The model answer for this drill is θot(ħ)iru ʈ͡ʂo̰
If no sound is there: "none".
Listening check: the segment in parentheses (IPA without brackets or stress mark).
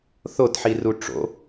ħ